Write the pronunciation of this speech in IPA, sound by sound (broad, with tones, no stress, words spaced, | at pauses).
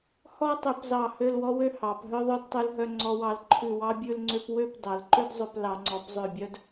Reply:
hɔ˥tˤø˧pzɑ˧˩ hø˥˧lwɔ˥wø˥ hɑ˩˧p ɦœ˥ðˤœ˥˧dtˤʉ˧lɦœ˧ ŋ͡ǀɔ˧wɑ˧lǃʰʉ˧˩ wɑ˥bʲʉ˥˧lŋ͡ǀø˥p wø˥˧p dɑ˩˧lǃø˥d zˤø˧p lɑ˩˧ŋ͡ǀɔ˩˧pzˤø˧˩bʲœ˥d